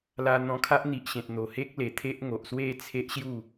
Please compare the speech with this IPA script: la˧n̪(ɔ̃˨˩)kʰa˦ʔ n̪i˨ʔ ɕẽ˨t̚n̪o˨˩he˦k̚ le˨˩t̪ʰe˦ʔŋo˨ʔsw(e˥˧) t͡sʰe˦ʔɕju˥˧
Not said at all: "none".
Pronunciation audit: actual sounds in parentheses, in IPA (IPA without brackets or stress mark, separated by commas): ɔ̃˧, e˥˧